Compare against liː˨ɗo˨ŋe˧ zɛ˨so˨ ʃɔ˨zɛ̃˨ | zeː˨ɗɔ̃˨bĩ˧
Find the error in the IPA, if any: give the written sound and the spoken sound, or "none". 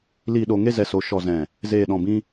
none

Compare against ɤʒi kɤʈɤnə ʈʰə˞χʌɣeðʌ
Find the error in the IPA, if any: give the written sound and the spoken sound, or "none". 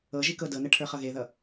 ʈ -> d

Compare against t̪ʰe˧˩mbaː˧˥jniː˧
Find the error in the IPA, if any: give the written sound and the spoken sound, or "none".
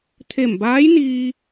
none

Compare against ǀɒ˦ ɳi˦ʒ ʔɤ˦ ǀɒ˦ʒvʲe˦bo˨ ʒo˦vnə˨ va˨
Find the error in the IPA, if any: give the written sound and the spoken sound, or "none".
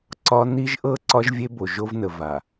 ɳ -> n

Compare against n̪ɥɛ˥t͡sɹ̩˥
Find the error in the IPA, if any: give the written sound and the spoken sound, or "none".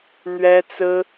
none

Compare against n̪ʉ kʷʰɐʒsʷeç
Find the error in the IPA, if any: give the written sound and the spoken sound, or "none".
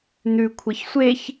ʒ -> ç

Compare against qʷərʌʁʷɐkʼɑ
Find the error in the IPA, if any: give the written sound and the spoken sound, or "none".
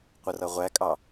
ɐ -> æ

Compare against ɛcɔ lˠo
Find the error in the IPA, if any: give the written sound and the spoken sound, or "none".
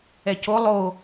ɔ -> o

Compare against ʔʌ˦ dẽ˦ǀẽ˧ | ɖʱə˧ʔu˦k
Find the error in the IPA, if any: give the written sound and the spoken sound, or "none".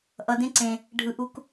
ə˧ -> ɯ˧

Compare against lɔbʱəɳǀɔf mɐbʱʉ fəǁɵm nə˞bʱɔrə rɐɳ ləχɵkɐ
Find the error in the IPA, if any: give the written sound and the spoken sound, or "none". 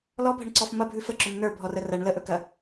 χ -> ʔ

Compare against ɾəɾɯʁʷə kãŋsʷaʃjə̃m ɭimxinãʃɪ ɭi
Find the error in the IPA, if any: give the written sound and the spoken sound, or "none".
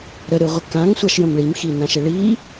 none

